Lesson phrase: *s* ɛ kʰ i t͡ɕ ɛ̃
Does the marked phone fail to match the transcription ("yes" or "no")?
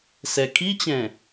no